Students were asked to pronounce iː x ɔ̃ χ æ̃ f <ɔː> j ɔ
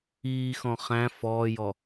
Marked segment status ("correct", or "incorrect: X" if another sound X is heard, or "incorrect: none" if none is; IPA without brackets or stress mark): correct